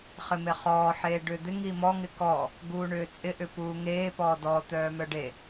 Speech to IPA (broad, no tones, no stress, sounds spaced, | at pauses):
χ ɪ m e χ ɔː ħ eː ɖ ʏː d̪ ɪ ŋ i m ɔ ŋ ɪ k ɔ | ɡ uː ɳ ʏː t͡sʼ ɪ ʔ ʏ p uː ŋ eː p ɔː d ɔ t̪ œː m œ ɖ e